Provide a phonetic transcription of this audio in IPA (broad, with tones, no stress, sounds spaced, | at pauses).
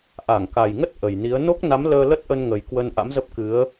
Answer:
ʔ a˧˩ ŋ k a˨˩ j ŋ ə˦˥ t̚ ʔ ə˨˩ j n i˨˦ ə̯ n o˦˥ k̚ n a˨˦ m l əː˧ l ə˦˥ t̚ ʔ ə˧ n ŋ ə˨˩ j k w ə˧ n ʔ a̰˧˥ m z ə˦˥ p̚ k ɨ˨˦ ə̯